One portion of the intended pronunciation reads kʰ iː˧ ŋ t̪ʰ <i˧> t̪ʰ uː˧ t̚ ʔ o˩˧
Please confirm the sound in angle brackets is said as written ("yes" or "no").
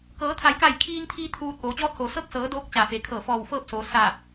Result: no